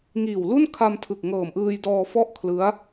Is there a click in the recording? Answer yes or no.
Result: no